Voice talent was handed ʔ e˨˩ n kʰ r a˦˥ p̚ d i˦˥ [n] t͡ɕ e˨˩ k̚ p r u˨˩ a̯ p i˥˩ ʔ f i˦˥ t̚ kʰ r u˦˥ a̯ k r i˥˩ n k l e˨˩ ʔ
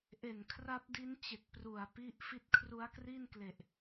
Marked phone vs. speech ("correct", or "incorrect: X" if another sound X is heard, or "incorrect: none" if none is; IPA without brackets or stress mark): correct